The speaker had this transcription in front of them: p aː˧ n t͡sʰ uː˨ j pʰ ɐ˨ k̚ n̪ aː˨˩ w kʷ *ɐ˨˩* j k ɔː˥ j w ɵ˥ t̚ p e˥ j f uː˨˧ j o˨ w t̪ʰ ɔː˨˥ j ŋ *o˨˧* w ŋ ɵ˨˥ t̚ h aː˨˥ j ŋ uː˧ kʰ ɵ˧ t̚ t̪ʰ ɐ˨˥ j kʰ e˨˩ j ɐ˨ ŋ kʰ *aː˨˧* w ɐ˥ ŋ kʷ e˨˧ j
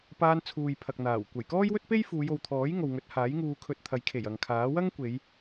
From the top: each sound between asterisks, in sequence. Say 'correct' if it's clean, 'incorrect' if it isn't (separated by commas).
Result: correct, incorrect, incorrect